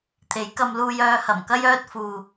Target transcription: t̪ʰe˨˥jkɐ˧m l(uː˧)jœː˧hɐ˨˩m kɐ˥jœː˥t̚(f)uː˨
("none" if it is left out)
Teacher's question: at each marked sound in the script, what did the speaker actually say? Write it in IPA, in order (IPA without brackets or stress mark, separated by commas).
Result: uː˧, f